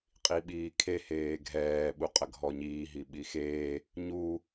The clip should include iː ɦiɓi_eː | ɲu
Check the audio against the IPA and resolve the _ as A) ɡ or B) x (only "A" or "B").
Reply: B